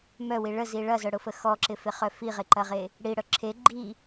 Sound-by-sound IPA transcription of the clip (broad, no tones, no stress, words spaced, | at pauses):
mœwi ɭəzi ɭɐzœɽʊfə xɔǁɪfɪχœ fiʁeǃɐʁe | ɽiɽœ ǁʰe ɡ͡ǃi